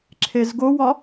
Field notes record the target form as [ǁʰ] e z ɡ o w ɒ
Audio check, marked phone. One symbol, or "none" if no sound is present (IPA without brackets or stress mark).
ǁʰ